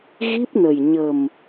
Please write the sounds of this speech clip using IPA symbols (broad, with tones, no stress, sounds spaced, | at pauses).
ɣ i˦˥ p̚ n ə˨˩ j ɲ ə˨˩ m